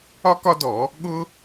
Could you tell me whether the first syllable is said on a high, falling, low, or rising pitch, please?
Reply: high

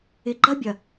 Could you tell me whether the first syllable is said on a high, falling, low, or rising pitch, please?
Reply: low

